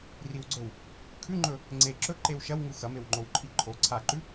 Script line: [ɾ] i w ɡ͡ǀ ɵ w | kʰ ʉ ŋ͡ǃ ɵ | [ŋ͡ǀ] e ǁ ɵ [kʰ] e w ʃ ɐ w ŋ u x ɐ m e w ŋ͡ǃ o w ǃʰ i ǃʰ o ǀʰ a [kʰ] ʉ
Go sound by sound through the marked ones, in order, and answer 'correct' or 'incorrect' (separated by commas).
incorrect, correct, incorrect, incorrect